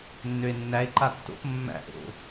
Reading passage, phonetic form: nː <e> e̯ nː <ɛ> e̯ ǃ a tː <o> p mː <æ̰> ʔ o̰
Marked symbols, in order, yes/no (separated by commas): no, no, no, yes